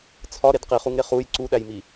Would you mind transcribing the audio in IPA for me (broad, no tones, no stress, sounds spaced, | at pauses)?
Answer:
t͡sʰ ɒ ɾ e d q i χ u ŋ ɾ e χ u j ǀ u ɗ æ j m i